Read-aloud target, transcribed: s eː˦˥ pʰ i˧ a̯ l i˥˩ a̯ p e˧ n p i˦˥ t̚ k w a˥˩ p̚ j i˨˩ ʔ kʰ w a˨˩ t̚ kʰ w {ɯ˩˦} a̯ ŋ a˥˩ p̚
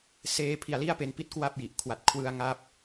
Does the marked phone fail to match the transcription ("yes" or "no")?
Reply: yes